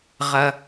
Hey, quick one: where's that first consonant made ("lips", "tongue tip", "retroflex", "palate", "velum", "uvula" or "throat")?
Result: uvula